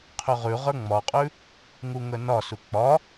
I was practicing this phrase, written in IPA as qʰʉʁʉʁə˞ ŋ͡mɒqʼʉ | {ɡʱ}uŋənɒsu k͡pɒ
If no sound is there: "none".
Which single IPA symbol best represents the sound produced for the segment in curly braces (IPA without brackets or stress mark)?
ŋ